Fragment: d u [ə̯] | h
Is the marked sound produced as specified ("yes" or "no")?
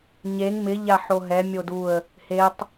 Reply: yes